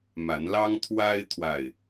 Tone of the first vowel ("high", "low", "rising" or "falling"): rising